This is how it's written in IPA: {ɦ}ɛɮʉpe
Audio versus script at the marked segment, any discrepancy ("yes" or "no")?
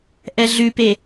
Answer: yes